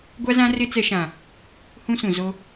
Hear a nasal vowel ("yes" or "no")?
yes